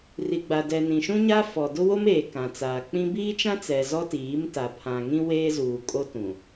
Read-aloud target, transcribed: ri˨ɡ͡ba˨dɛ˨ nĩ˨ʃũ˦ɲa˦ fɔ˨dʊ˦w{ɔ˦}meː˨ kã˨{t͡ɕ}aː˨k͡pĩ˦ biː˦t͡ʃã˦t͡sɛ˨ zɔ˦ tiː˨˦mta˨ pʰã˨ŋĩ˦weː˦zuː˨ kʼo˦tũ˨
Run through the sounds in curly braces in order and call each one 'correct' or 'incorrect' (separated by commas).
incorrect, incorrect